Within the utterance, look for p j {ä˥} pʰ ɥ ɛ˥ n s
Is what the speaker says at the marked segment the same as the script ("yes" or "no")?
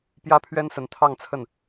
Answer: yes